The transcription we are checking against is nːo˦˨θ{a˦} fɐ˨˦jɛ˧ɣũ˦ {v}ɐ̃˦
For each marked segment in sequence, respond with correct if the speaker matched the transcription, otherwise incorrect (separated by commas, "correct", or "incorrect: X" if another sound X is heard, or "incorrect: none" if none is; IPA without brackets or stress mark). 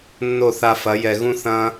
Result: incorrect: a˧, incorrect: θ